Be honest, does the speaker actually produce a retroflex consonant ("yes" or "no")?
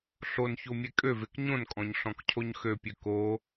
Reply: no